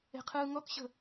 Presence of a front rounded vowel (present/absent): absent